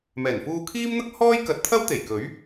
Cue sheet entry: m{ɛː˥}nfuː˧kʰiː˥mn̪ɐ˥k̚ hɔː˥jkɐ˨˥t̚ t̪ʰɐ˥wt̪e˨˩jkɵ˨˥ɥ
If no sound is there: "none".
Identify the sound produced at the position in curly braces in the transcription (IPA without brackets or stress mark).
ɛː˨˩